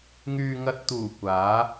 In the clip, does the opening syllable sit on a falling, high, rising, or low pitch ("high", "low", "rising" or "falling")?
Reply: low